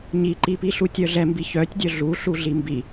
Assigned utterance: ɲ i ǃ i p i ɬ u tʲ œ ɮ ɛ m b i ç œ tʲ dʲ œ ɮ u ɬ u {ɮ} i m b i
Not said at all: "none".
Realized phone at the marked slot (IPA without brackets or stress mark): ɮ